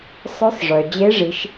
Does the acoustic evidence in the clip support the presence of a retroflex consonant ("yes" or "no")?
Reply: yes